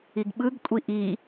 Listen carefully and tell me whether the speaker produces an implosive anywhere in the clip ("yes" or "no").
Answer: yes